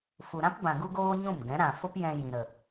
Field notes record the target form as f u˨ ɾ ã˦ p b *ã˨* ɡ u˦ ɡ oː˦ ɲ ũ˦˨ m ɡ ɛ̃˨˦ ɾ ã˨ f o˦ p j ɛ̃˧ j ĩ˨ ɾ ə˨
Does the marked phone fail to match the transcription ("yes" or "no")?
no